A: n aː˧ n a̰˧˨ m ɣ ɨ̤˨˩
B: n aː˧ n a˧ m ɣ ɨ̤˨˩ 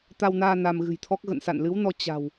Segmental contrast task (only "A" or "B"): B